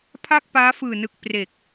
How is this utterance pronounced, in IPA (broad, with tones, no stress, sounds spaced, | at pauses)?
pʰ a˥˩ k̚ p aː˦˥ f ɯː˨˩ n ɯ˨˩ k̚ p r e˨˩ k̚